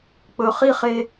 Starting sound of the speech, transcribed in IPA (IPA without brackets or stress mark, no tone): k͡p